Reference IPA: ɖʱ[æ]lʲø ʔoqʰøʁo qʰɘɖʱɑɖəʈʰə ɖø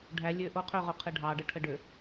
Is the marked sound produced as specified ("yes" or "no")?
yes